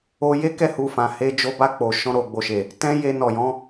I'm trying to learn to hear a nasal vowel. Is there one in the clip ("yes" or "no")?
yes